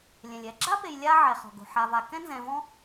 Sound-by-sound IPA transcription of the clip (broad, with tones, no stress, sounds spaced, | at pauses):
lʲ ɛ̃˩ lʲ ɛ˨ ɡ͡ǁ a˥ p e˨ j lʲ a˦ ʕ ɛ˩ χ ɔ̤˩ ɡ o̤˩ ħ a˨ v a˨ k ɛ̃˦ n z ɛ̃˨ v ɔ̃˦